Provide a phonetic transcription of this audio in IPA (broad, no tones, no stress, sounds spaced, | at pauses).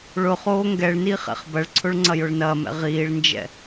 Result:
ɭ ʊ χ oː ŋ ɡ ɛ ɭ n iː χ ɛ̰ χ b ɐ ɭ ǀʰ ʊ ɭ ŋ͡ǀ ɐ j ʊ ɭ n ɐː m ɛ̰ ʁ iː ɭ n d͡ʒ ɛ̰